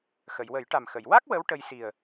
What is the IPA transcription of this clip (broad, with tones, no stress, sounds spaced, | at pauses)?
x ə˨˩˨ j w ə˨˩˦ j ʈ a˨˩ m x ə˨˩˨ j w a˦˥ k̚ w ə˧˥ w ʈ ə˧ j s i˨˩ ə̯